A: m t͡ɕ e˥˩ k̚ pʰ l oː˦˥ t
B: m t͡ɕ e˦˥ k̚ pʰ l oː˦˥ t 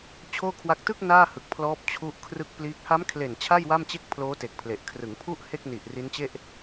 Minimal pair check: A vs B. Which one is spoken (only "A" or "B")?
A